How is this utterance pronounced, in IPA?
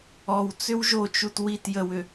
ɔ w t͡s ʏ w ʒ o t͡ʃ u t w i t j ə w ʏ

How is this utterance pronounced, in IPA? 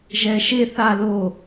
ʒ ɛ ʃ e θ a l o

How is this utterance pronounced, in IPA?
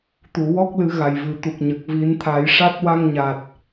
t̪ u˨˩˨ w ɔ˦˥ k̚ l ɨ˨˩˦ ɣ a˨˩ j v ɨ˨˩ t̪ u˨˩ k̚ ɲ ə˨˩ k̚ v i˨˩˦ n t̪ʰ a˨˩˦ j ʂ a˦˥ t̚ w a˧ ŋ ɲ a˨˩ t̚

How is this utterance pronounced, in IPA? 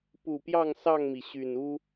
p u˨˩ p j ɑ˥˨ ŋ s ɑ˥˨ ŋ m i˩ ɕ y˨˩ n u˦

